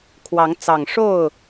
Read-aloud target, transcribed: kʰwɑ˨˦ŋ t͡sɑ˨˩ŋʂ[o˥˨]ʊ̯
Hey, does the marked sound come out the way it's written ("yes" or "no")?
yes